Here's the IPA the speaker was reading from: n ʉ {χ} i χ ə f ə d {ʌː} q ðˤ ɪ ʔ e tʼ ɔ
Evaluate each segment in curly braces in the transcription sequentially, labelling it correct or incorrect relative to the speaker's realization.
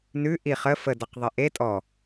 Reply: incorrect: ʔ, incorrect: ʌ

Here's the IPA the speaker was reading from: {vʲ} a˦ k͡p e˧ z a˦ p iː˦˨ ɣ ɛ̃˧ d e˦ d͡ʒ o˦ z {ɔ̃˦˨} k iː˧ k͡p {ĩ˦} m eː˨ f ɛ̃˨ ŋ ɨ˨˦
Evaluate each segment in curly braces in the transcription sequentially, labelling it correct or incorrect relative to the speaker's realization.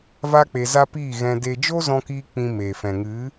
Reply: incorrect: v, incorrect: ɔ̃˧, incorrect: ĩ˧

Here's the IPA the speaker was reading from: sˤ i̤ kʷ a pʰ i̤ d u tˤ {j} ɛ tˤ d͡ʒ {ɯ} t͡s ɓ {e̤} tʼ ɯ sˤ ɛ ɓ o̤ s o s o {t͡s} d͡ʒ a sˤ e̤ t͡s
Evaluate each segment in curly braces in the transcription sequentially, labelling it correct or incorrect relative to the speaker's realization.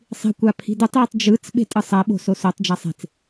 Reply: correct, correct, correct, incorrect: tˤ

